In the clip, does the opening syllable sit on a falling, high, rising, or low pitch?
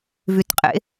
rising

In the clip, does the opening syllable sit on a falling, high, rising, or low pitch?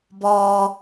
low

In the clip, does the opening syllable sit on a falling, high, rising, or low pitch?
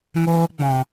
high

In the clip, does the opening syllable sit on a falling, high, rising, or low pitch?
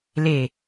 low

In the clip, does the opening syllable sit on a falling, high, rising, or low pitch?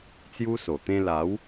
high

